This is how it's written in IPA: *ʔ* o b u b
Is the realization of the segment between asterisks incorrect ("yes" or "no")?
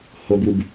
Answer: yes